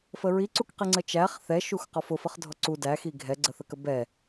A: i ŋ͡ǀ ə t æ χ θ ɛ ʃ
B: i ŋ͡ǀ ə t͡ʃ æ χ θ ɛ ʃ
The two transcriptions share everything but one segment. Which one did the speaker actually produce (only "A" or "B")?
B